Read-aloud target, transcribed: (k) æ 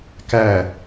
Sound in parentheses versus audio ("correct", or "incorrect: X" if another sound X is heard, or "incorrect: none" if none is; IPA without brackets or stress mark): correct